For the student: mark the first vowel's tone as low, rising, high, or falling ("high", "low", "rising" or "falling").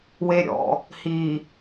low